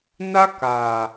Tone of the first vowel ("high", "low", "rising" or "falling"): high